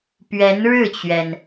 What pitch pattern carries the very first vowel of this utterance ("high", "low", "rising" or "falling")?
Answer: rising